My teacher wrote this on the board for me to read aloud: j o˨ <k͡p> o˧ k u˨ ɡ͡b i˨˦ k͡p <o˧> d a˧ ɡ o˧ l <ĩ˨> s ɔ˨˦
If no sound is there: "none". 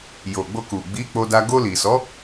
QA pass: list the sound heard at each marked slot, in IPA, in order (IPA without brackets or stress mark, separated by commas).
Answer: ɡ͡b, o˧, i˨